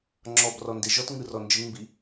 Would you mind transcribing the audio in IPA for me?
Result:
ŋ͡ǁ ɔ b r ɔ n d e ʒ ɔ t ŋ ɯ r ɔ n d͡ʒ ɯ ŋ m b i

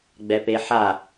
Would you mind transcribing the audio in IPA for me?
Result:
ɡ͡b ɛ p e ħ a

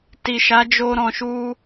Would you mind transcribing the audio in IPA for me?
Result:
t i˨ ʃ a˨˦ d͡ʒ o˧ ɾ ɔ̃˨ ʃ u˧

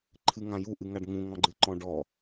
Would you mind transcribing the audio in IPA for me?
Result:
ǃʰ ɨ ŋ ã j u ʔ ɨ ŋ a ɖ ŋ ũ ŋ ɔ̃ ɡ͡ǃ ɨ ǃ ɔ̃ ɖ ɔ

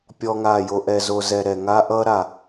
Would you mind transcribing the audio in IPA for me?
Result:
pʲ ɔ˦ ŋ a˦˨ j o˦ ʔ ɛ˧ z o˧ z ɛ˧ ɾ ɛ˨ ŋ a˦ ʔ ʌ˦ ɾ a˨

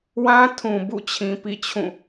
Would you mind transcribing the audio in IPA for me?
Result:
w ã˦ tʰ ũ˨ b ṵ˦˨ t͡ɕʰ ĩ˨ p ḭ˦˨ t͡ɕʰ ũ˦˨

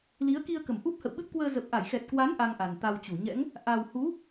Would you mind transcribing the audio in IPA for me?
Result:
l i˨˦ ə̯ k i˧ ə̯ k ə˧˩ m ʔ u˦˥ p̚ h ə̰˧˨ w ɓ ɨ˦˥ p̚ k w əː˧ z ə˨˩ p̚ ʔ a˧˩ j x ɛ˨˩ t̚ k w a˨˦ n ʔ a˧ ŋ ʔ a˨˩ n t̪ a˧ w t͡ɕ u˧˩ ɲ ɛ̰˧˥ ŋ | ʔ a˨˩ w h u˨˦

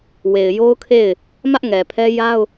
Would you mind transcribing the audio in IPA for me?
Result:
w e˨ ɪ̯ j o˦ ʊ̯ kʰ e˦˨ ɪ̯ | m ä˦ ʔ ŋ ɛ˨ pʰ ɛ˦ j a˦ ʊ̯

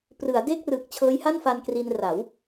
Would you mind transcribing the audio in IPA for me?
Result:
p r ɯ˩˦ a̯ d eː˥˩ k̚ r ɯː˨˩ k̚ t͡ɕʰ ɤː˦˥ j h a˥˩ n f a˧ n k r i˧ n r a˩˦ w

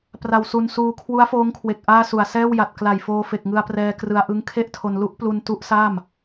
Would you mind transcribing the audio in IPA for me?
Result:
p r a˧ w s u˧ n s uː˧ kʰ w u˦˥ a̯ f oː˦˥ ŋ kʰ w e˨˩ k̚ ʔ aː˥˩ s u˨˩ a̯ s ɛː˥˩ w j a˨˩ t̚ k l a˨˩ j f oː˧ f e˨˩ k̚ ŋ ɯ˧ a̯ p r ɛː˧ k r ɯ˧ a̯ ʔ ɯ˦˥ ŋ kʰ e˥˩ ʔ tʰ o˧ n l u˦˥ ʔ p l u˧ n t u˦˥ ʔ s a˥˩ m

